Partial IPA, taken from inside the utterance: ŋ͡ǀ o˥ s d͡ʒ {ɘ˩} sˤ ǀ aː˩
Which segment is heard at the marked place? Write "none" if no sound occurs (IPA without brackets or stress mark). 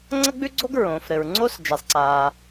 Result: ɛ˩